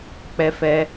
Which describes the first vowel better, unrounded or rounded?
unrounded